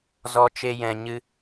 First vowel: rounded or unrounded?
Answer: rounded